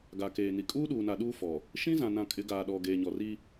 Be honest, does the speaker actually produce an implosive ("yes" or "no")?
yes